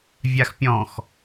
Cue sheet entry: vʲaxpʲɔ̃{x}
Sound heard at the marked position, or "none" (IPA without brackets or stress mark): x